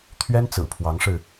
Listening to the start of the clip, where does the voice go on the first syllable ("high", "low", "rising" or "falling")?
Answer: high